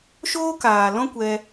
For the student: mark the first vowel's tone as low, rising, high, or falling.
high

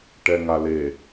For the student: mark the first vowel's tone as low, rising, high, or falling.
low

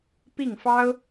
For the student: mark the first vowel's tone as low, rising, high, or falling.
falling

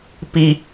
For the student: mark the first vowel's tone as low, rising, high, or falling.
low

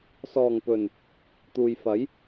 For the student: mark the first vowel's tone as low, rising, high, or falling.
low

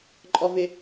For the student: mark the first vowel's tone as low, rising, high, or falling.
high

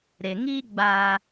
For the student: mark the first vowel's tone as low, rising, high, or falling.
low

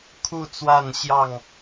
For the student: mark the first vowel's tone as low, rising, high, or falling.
falling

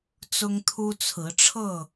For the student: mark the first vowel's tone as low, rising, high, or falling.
high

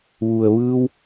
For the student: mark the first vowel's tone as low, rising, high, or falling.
low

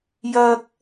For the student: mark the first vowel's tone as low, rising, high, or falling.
high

